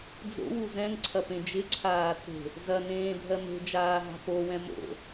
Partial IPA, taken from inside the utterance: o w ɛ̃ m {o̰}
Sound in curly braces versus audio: correct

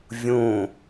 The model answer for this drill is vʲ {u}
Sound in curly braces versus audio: incorrect: ũ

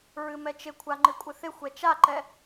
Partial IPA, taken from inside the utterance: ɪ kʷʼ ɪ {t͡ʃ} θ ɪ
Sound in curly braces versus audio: incorrect: none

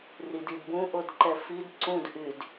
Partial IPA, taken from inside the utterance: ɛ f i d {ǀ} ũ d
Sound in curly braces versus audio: correct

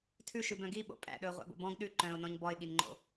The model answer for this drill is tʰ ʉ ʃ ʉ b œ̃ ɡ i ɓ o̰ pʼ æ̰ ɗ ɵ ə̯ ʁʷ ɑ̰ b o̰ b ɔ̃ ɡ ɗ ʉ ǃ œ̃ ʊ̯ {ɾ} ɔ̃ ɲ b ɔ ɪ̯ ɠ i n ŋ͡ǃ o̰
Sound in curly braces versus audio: incorrect: n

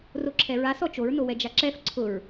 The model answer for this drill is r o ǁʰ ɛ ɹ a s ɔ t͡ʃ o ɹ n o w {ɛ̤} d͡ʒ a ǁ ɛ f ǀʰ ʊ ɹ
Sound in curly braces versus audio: incorrect: ɛ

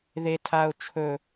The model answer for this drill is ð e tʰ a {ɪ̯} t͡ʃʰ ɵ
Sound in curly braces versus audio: incorrect: ʊ̯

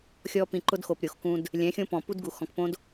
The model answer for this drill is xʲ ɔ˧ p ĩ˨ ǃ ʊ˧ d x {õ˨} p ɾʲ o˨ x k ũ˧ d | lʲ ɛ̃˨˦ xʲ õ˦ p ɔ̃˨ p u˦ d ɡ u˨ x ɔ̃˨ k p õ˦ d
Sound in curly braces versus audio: incorrect: o˨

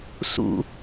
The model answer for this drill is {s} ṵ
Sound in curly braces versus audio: correct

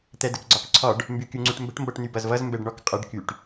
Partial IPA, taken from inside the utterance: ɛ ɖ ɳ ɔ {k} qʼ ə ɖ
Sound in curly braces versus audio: correct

